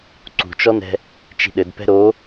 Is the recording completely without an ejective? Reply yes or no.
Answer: yes